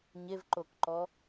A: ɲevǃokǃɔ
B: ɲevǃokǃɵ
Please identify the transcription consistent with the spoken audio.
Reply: A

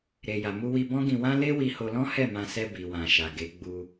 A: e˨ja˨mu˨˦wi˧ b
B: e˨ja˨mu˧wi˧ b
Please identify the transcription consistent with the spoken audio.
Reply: B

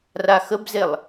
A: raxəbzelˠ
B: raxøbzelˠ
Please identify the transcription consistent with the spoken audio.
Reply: A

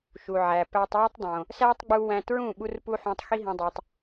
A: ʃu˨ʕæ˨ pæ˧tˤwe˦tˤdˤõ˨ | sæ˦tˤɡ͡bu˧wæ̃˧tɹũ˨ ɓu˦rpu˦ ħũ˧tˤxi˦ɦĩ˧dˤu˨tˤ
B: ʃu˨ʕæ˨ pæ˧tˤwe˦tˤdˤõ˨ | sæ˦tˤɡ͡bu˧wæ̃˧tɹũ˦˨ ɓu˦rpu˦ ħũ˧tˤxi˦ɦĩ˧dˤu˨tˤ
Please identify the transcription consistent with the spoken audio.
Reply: B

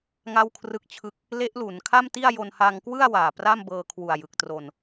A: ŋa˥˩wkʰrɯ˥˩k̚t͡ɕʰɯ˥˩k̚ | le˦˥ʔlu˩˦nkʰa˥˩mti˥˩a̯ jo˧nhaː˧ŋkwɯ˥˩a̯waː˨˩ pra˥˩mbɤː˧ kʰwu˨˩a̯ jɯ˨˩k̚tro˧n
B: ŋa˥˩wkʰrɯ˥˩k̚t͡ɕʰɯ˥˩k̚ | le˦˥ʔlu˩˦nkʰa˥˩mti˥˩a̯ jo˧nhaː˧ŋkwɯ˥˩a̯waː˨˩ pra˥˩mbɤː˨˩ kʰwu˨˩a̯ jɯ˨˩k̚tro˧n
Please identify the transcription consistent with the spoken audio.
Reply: A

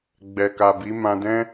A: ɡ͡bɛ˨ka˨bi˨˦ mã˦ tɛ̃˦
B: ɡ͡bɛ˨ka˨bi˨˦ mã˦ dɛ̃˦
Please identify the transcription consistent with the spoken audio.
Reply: B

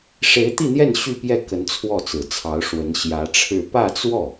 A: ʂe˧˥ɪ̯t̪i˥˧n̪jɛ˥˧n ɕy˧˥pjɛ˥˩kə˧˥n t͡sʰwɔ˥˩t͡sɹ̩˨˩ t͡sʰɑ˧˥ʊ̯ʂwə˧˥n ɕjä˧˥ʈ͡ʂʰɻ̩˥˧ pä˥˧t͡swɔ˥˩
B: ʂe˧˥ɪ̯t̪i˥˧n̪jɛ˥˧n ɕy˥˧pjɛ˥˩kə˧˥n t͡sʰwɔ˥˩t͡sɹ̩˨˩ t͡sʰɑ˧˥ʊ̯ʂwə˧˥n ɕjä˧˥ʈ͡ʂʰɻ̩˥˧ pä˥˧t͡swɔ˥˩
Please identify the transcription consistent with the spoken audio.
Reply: B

